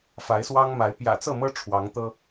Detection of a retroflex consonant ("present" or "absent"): present